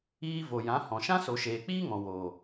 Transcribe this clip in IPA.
iː˧ v o˨ j ã˨˦ h ɔ̃˨ ʃ ã˦ s o˨ ʃ eː˨ k͡p iː˦ ŋ ɔ̃˨ w oː˨

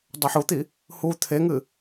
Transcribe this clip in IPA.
dˤ a ħ u t̪ i | h u t̪ʰ e ŋ ɨ

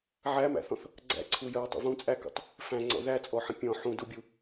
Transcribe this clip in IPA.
ʕ æ m æ̰ θ ɔ̃ θ | ɡ͡ǀ æ̰ ǀʰ u j ə w tˤ ə̰ v ũ t͡sʼ æ k ṵ tˤ | f æ̃ ŋ͡ǀ ɔ̰ ð æ t͡sʼ ɔ ħ ə̃ pʲ ɔ̃ ħ ũ d u bʲ u

